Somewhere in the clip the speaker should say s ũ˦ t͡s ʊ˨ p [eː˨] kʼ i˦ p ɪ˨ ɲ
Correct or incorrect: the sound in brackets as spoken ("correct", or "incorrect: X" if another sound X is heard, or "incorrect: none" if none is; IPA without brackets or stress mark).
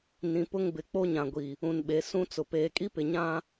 correct